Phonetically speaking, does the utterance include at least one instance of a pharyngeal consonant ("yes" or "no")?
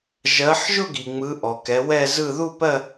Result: yes